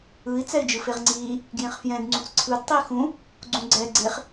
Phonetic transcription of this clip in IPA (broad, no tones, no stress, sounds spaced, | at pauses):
ɯ i̯ t͡s ɛ i̯ d͡ʒ ɯ f e ʁ ŋ͡ǀ iː | ɡ j ẽ χ f j ɛ̃ d ŋ͡ǀ ũ t͡s ǀʰ ɯ d tˤ i x ũ | ɡ͡ǀ ũ ɡ͡ǀ ɛ ɡ͡ǀ e χ